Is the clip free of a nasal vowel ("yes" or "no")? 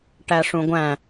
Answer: no